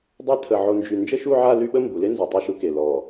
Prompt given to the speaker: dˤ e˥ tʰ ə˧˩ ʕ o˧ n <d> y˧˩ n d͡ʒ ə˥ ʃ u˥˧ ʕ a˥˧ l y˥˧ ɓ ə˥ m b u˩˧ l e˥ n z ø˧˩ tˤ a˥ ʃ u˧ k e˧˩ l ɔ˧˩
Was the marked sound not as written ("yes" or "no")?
yes